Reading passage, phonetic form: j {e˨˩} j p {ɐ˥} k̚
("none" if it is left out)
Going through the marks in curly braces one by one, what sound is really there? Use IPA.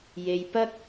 e˧, ɐ˥

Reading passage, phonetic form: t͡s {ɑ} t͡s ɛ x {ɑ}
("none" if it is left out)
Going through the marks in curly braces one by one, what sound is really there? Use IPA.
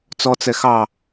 ɔ, ɑ

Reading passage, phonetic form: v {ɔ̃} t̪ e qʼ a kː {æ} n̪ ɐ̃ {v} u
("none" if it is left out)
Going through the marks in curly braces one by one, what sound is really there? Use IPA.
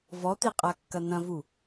ɔ, ɐ, v

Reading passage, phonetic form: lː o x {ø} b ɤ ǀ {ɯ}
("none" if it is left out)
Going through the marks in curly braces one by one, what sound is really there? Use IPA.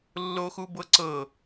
u, ɤ

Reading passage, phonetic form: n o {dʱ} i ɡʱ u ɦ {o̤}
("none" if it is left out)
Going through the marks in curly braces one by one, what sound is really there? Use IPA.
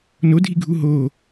dʱ, o

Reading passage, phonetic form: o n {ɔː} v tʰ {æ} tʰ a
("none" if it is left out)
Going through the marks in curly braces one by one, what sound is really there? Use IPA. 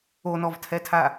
ɔ, ɛ

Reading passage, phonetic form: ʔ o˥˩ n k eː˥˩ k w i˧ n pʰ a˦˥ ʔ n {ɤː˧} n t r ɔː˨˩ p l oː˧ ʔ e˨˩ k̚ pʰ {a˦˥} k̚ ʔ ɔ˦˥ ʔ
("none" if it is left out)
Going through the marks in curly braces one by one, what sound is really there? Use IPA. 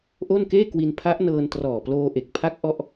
ɤː˧, a˦˥

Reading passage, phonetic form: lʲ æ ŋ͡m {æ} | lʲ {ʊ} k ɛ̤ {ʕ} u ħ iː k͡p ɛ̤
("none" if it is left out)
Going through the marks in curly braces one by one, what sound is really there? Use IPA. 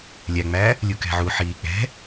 æː, u, ʕ

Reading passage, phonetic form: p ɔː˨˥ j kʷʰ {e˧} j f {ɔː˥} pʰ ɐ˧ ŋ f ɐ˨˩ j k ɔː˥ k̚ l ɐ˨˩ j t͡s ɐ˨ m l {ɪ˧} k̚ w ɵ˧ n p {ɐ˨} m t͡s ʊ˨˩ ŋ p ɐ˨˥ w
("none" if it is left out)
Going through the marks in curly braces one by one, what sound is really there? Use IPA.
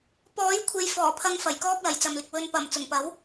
e˨, ɔː˨˩, ɪ˧, ɐ˨˩

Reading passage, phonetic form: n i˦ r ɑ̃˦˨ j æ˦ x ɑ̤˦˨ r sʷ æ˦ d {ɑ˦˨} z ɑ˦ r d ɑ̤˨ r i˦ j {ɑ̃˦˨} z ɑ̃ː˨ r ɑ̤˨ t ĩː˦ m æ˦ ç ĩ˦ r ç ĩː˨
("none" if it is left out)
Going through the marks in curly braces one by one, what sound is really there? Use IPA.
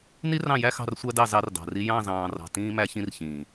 ɑ˦˨, ɑ̃˦˨

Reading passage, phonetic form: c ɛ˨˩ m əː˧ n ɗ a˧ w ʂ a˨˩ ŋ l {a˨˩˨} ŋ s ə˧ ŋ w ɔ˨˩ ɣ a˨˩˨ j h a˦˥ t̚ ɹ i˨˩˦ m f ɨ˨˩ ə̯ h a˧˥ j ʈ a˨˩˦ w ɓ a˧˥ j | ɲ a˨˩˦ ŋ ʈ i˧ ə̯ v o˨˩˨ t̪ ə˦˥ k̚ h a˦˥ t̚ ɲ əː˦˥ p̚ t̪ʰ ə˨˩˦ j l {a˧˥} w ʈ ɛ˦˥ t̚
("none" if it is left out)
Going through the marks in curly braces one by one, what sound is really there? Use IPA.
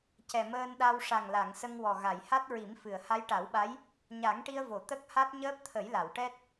a˨˩˨, a˨˩˨

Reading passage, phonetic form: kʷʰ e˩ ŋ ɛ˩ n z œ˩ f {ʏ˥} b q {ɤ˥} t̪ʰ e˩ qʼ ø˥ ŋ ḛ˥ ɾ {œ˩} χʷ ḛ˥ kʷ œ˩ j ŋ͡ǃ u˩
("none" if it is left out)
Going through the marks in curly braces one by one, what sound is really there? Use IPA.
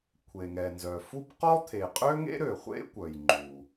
u˥, ɔ˥, ø˩

